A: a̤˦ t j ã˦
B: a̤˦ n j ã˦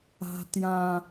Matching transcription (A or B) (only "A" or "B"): A